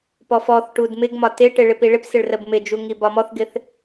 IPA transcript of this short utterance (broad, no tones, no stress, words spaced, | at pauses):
pɔfɔθʈud mɪɡmɒ tɪʈɪ ɭɪpiɭɪpsɪɭ rəbmɪd͡ʒu ŋibɒmɔθɡɪθ